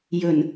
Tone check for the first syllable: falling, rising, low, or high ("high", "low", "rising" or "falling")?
low